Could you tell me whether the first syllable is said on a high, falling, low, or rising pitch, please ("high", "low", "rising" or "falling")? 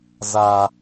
high